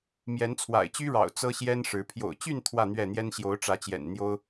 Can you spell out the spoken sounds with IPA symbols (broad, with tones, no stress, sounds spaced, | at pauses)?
m j ɛ˨˦ n t͡sʰ w a̰˨˩ ɪ̯ t͡ɕ y˦ ɻ ɑ̰˨˩ ʊ̯ t͡s ɤ˦ ɕ j ɛ˦ n ʂ ɻ̩˨˦ pʰ j o̰˨˩ ʊ̯ t͡ɕ y˥˨ n t̪ʰ w ä˥˨ n̪ ɥ ɛ˥˨ n̪ j ɛ˦ n ɕ j o˨˦ ʊ̯ ʈ͡ʂ ä˨˦ t͡ɕ j ɛ̰˨˩ n n̪ j o˦ ʊ̯